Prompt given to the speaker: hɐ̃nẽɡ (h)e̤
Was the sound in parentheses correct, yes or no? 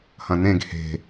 yes